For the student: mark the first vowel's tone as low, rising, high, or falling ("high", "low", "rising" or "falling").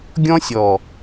high